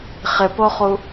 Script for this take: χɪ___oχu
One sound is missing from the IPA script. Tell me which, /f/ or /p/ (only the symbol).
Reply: p